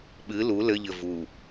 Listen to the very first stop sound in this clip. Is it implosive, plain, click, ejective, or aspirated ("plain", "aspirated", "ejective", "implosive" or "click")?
implosive